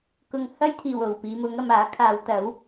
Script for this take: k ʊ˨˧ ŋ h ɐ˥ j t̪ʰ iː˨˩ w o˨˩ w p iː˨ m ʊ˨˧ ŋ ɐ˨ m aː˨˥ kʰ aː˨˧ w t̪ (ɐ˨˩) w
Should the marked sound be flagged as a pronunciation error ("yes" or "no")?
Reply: yes